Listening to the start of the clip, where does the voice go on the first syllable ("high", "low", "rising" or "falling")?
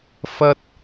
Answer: high